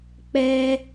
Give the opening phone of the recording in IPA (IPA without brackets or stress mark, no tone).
k͡p